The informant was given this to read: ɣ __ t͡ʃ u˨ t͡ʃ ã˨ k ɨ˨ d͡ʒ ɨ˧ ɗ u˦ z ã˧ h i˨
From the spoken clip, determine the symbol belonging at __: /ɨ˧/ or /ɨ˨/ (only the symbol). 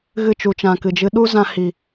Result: ɨ˧